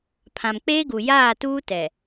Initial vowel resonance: nasal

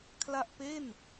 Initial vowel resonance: oral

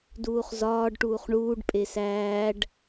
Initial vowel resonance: oral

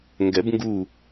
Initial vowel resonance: oral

